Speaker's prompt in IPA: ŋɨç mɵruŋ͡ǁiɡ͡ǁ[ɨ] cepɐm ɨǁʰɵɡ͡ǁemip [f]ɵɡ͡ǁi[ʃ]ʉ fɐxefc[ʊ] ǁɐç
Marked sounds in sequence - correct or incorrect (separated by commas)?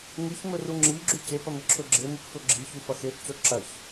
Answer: incorrect, correct, incorrect, incorrect